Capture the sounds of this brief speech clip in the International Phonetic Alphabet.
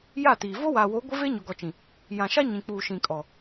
j a˦˨ t iː˨ v o˦ w aː˨ w o˨˦ ɡʷ ɪ˦ v e˦ ɲ o˨ ɡ ɔ˨ t͡ʃ ĩ˨ | j ã˨ ʃ a˦ ɲ ĩ˨ k͡p uː˨ ʃ ĩ˨ kʼ ɔ˨

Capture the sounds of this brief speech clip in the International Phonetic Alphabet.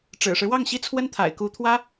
ʈ͡ʂ ɻ̩˨˩ ʂ ɻ̩˦ w ɑ˥˩ ŋ ɕ i˥ t͡sʰ w ə˥ n t̪ʰ a̰˨˩ ɪ̯ k u˧˥ t̪ʰ w ä˥

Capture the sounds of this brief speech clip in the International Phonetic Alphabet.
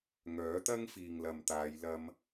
ŋ œː˨˥ t̪ ɐ˥ ŋ f iː˨ ŋ l ɐ˨ m t̪ aː˨˧ j l ɐ˧ m

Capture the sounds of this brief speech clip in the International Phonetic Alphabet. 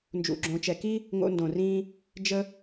n d͡ʒ ṵ˧ ɡ͡ǁ õ˧ t͡ʃ ɛ˧ k i˦ | ŋ o̰˦ n d õ˨ r ĩː˧ | d͡ʒ ə˦

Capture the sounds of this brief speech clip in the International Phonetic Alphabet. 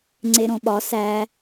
ŋ͡ǀ e ɾ õ ɓ ɒ s æ

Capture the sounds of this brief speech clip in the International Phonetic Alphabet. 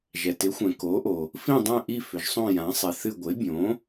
ʒ ɛ˩ t ɪ˩˥ xʷ ɛ̃˩ k o˩˥ ʔ o˩ | f ĩ˦˨ dˤ ɛ̃˦˨ ʔ i˦˨ f ʏ˩ ʒ sˤ õ˦˨ j ã˩˥ sˤ ɪ˩˥ θ ɨ˦˨ ɡʷ ɪ˩˥ bʲ õ˩˥

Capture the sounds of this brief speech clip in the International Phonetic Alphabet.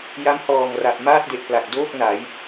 j a˦˥ m h ɔː˨˩ ŋ r a˨˩ p̚ m aː˥˩ t̚ d e˨˩ ʔ p l a˨˩ k̚ d oː˥˩ k̚ n a˩˦ j

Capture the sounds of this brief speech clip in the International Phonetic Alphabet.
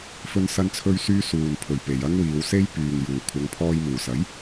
f ɵ˥ n s ɐ˥ n t͡sʰ ɵ˥ ɥ s yː˥ s uː˨ n pʰ ɵ˨˩ ɥ p e˨ j ɐ˥ ŋ w iː˨˧ w s e˥ j p yː˨ ŋ j uː˨˩ kʷʰ ɐ˨˧ ŋ pʰ ɔː˧ j m uː˨˩ s ɐ˨˥ j

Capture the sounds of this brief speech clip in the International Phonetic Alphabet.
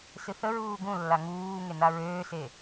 s ɨ θ ə ɹ uː ɡ ũ lː a ŋ uː ŋ e n a ɹ øː s e

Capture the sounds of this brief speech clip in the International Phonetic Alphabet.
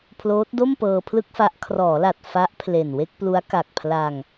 pʰ l oː˦˥ t̚ d o˥˩ m p ɤː˧ pʰ l ɯ˥˩ k̚ f a˦˥ ʔ kʰ r ɔː˩˦ l a˨˩ t̚ f a˦˥ ʔ pʰ l e˨˩ n w e˥˩ k̚ p l u˦˥ a̯ k a˨˩ k̚ pʰ l a˧ ŋ

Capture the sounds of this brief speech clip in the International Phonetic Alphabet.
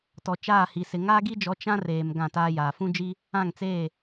t ɔ˨ t͡ʃ aː˦˨ h i˨ s ɪ˨ ŋ aː˦ ɡ i˦ d͡ʒ ɔ˨˦ t͡ʃ ã˦ r eː˨ m ɡ ã˦˨ t aː˦ j aː˨ f ũ˦ d͡ʒ i˦ | ã˦˨ ŋ t͡s eː˦˨

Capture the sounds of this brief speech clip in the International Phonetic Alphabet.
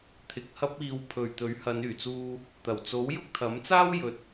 t̪ʰ ɪ˨ k̚ h ɐ˥ p̚ iː˧ w pʰ ɵ˨ ɥ t̪ ɵ˨˥ ɥ h ɐ˨˧ n yː˨˩ t͡s uː˧ | t̪ ɐ˨˩ w t͡s o˨˥ w j ʊ˥ k̚ t̪ʰ ɐ˨˥ m t͡s aː˥ w j ɵ˨˥ t̚

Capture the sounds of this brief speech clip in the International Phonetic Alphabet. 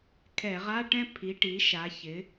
kʰ ɛ˧˩˧ ʁ a˧˥˧ ʈ ɛ̃˥˧ pʰ i˩˥ ʈ i˩˥ ʃ a˩˥ ç ɪ˩˥

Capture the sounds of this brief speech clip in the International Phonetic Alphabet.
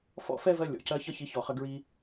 f ɔ̰˦ f ɛ˦ v ɜ˧ lʲ ɔ̰˨ c ɜ˧ ç ʌ˦ ç i˨˦ ç ɔ˨ χ ə˧ ɡ ɹ i˧

